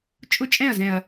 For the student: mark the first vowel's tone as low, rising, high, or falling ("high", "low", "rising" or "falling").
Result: falling